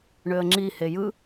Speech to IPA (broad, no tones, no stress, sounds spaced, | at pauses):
ɳ ø ə̯ ŋ͡ǁ i h e j ɯ